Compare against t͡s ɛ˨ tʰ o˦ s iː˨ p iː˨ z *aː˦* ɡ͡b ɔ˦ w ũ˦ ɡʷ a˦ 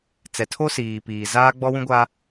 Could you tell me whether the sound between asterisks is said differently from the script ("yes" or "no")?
no